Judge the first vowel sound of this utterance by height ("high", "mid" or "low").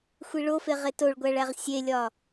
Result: high